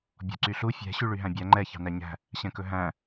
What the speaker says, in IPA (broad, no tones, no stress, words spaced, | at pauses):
bʲɔ̤ǀyɬu fʲɛ̤ ɕyɭyɦæ̃bʲæ ŋ͡ǃɛ çɑ̤næɲæ̤ | ɕɛ̃kɵɦæ̃